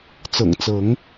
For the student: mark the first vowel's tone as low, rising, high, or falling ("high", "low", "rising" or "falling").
low